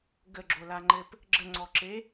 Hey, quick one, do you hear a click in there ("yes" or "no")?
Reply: yes